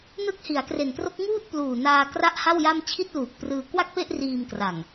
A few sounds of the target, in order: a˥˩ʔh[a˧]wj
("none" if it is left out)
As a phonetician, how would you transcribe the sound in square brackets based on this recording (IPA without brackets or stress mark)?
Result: a˥˩